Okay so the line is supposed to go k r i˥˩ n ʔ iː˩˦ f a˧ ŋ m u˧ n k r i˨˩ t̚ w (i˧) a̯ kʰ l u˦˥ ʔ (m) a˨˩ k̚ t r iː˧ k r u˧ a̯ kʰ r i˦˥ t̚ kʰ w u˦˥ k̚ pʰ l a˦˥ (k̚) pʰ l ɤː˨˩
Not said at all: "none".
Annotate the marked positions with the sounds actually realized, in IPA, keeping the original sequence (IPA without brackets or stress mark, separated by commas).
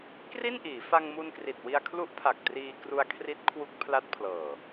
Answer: i˧, pʰ, t̚